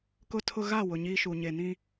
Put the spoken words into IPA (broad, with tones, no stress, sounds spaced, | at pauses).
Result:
k ʊ˦ tʰ ʊ˦ ɣ a˦˨ w ʊ˨ ɲ iː˦ ʃ u˨ ɲ e˨ n ĩ˦